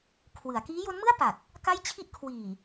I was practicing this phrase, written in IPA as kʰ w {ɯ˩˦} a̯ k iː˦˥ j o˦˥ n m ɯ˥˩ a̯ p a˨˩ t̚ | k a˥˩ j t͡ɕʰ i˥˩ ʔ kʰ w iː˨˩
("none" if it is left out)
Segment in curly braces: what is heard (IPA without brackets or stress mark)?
ɯ˩˦